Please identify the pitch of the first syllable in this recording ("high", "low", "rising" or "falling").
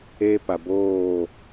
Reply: high